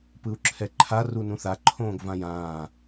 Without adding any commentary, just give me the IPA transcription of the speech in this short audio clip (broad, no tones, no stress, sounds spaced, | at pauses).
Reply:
p ɯ u̯ ǁʰ ɛ ǃʰ a r u n ũ θ a ǃʰ õː ɡ v ã j ãː